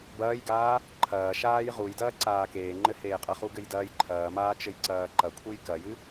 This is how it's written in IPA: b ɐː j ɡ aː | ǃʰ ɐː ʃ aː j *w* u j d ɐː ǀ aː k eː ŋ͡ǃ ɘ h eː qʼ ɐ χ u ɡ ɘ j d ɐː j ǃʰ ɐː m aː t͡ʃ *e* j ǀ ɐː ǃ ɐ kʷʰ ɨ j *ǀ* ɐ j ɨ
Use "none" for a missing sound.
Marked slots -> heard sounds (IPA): ʁ, ɘ, k

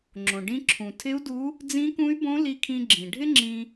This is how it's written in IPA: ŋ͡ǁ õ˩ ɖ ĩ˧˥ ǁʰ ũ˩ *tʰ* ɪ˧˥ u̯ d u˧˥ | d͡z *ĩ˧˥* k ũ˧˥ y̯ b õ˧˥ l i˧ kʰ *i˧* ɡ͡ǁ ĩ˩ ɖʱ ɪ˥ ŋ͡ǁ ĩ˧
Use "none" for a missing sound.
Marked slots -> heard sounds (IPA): tʰ, ĩ˧˥, ĩ˧

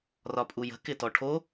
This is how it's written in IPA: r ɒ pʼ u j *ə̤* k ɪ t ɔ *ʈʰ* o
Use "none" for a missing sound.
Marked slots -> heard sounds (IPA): ə̤, ʈʰ

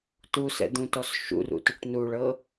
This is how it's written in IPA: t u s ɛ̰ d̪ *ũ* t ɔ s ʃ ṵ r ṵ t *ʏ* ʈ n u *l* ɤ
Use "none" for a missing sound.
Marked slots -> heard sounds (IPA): ũ, ʏ, ɭ

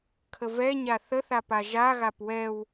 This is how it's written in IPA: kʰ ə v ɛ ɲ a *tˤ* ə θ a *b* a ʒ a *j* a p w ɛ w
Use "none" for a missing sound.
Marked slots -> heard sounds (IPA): θ, p, ɣ

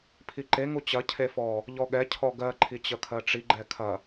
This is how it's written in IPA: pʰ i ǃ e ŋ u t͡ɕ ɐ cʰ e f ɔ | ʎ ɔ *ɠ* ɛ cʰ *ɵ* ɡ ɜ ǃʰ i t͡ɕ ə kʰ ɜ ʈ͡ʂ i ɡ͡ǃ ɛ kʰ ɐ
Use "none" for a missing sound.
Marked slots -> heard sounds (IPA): ɠ, ɔ

